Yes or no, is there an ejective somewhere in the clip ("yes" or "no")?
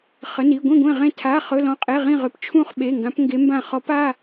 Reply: yes